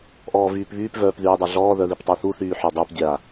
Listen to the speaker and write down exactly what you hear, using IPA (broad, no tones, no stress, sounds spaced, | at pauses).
ʔ ɔː v yː p β yː p v œː p ð yː dˤ a ɮ ɔː ð œ ð i p tˤ œ θ u θ yː ħ œ dˤ œ p dʲ a